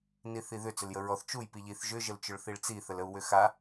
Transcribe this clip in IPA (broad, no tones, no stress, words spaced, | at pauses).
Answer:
niθiðʏ t͡sʏljəɹɔθ t͡ʃuj piʎiθ ʒʏ ʒəlt͡ʃʏɭθiɭt͡si θələu̯wʏxa